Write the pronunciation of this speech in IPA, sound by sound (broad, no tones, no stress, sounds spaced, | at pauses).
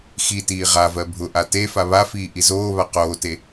x i t iː ʁ a v ɜ bʱ ʊ ʔ a t e f a β a f iː ʔ i z oː β a q oː t e